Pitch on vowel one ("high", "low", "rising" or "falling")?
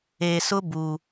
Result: low